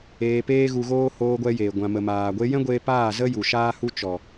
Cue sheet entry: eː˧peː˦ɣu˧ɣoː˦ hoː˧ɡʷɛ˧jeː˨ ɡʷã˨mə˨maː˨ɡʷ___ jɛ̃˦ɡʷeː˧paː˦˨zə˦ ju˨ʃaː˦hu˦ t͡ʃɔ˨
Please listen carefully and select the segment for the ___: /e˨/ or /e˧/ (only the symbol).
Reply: e˧